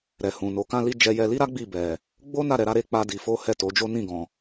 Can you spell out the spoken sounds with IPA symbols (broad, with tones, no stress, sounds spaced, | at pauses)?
ɾ ɛ˨ h ũ˨ n o˨˦ k ã˦ l i˦ d͡ʒ ɛ˧ j ɛ˧ l i˦ ɾ a˦ ɡ͡b i˦˨ b ɛ˨ | ɡ͡b o˦ n a˦˨ ɾ ɛ˧ ɾ a˦ ɾ e˦ k͡p a˦ d i˧ f o˦ h ɛ˦˨ t o˨˦ d͡ʒ o˦ n ĩ˦˨ ɡ ɔ̃˨